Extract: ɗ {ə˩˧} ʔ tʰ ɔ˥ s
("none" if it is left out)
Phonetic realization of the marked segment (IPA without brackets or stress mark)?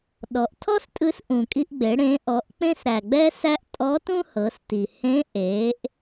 ɔ˩˧